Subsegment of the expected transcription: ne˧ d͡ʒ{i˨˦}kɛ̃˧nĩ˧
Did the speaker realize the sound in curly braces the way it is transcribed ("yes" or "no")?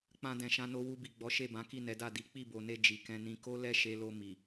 no